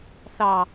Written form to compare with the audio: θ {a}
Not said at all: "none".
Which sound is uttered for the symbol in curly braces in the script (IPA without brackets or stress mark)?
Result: ɑ